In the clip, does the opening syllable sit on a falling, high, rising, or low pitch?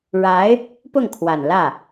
rising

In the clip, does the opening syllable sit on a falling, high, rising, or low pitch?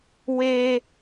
high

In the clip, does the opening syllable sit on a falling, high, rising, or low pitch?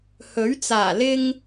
rising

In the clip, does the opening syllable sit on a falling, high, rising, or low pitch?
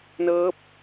rising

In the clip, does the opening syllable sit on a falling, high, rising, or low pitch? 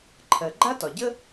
low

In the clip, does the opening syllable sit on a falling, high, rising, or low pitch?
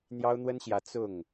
high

